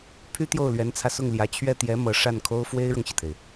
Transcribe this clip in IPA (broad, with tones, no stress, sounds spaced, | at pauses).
pʰ y˥ t̪ j o˥˩ ʊ̯ l ɥ ɛ˧˥ n t͡sʰ ä˧ s ʊ˥˩ ŋ l j ä˧˥ t͡ɕʰ ɥ ɛ˥˩ t̪ j ɛ˧˥ m ɤ˧˥ ʂ a˥˩ n kʰ o˥ ʊ̯ f w e˥ ɪ̯ ɻ ɤ˨ ŋ ɕ i˩ t̪ʰ e˩ ɪ̯